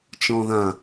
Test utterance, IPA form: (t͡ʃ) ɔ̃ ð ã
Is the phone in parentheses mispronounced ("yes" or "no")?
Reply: no